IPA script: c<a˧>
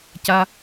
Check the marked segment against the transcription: correct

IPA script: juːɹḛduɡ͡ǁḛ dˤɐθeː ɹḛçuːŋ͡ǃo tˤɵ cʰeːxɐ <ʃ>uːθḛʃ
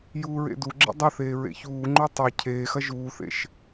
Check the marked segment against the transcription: incorrect: ʒ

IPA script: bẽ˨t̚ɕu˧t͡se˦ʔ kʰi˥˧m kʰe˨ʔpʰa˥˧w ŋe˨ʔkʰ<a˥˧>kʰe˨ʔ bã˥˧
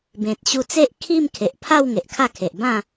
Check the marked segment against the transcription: correct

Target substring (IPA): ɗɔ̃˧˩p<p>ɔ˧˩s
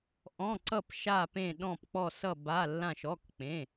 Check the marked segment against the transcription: incorrect: k͡p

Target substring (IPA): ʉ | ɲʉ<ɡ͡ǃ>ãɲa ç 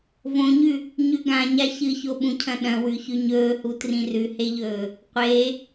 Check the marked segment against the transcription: incorrect: ɡ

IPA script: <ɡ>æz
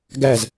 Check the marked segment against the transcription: correct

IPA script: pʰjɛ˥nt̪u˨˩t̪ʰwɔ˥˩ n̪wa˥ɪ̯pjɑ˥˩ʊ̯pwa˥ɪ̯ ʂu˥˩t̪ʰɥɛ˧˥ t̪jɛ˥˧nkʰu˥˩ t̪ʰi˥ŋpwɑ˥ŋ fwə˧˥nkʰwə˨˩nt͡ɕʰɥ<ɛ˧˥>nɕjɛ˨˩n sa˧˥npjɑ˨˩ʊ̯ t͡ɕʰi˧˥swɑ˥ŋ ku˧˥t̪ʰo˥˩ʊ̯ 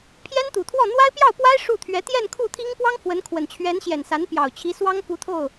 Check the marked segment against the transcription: correct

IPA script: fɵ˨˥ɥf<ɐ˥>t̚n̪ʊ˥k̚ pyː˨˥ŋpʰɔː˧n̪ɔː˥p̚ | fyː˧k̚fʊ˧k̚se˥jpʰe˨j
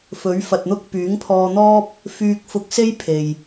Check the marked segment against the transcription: incorrect: ɐ˨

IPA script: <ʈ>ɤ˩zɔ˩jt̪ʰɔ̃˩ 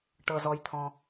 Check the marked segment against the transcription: correct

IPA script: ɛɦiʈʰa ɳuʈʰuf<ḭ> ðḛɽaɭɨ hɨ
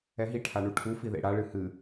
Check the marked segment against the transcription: incorrect: i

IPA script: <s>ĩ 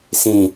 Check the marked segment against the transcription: correct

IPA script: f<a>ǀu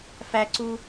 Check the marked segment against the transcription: incorrect: æ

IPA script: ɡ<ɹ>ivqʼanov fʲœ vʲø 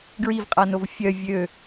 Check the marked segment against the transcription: correct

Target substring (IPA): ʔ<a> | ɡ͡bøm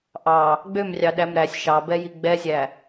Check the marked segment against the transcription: incorrect: ɑ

